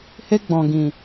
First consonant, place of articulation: glottal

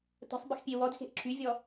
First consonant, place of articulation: alveolar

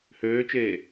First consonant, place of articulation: glottal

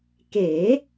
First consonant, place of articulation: velar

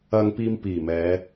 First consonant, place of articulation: velar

